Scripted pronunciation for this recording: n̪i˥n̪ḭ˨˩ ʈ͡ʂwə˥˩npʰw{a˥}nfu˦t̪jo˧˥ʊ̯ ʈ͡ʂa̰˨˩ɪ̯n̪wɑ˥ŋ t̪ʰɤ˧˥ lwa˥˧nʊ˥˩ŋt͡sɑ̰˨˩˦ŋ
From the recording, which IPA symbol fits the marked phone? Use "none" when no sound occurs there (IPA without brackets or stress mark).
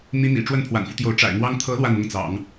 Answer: a̰˨˩